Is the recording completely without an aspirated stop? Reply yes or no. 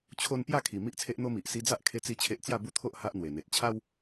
no